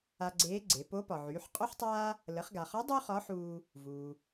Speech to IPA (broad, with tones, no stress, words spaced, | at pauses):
a˧ɡ͡ǀeː˧˥ɡ͡ǀe˩˧ po˧˥pɒ˩ʕyː˩˧ħ qʼo˥ħtˤaː˥ | lə˩˧χɡa˩χɒ˧˥ dˤu˥χɒ˧˥ħuː˧ | vuː˩